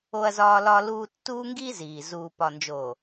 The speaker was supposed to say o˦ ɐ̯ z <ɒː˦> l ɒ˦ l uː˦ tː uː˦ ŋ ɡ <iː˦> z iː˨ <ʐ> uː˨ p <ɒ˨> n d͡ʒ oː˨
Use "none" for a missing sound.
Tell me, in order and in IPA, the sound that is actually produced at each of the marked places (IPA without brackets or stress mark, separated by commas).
ɒː˦, iː˦, z, ɒ˨